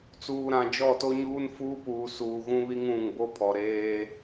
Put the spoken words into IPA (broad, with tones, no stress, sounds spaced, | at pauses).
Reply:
t͡s uː˨ ɾ ã˨ d͡ʒ ɔ˦˨ t o˦ ɲ uː˦ n f uː˦ p uː˨ s uː˨ ɣ ũ˦ β i˦ ŋ ũ˦˨ ŋ b o˦ pʰ ɔ˨ ɾ eː˦